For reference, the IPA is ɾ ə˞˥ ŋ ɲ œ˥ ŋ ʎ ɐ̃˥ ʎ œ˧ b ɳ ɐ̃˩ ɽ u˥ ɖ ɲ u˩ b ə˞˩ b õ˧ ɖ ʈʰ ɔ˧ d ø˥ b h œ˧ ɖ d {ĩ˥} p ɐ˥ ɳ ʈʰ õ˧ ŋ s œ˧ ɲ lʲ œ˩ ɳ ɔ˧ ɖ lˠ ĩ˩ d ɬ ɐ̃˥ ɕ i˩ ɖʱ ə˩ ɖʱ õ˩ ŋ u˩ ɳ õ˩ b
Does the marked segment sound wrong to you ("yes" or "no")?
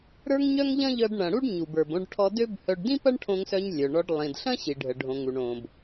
no